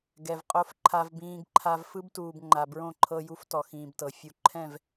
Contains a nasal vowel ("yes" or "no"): yes